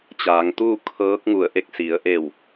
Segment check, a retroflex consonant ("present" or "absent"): absent